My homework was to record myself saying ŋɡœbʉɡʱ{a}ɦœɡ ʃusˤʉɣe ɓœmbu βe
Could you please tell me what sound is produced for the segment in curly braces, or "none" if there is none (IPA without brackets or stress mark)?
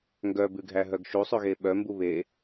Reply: æ